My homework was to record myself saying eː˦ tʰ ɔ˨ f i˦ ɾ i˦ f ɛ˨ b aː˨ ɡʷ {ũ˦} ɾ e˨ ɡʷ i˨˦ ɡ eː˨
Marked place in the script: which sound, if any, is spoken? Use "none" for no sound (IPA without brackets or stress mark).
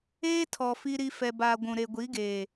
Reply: ũ˨